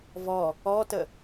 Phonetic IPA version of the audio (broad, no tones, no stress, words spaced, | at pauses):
vɔ | ɔtə